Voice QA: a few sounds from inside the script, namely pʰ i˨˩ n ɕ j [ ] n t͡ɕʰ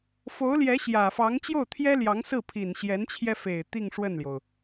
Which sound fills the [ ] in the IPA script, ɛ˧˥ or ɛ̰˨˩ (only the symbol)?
ɛ˧˥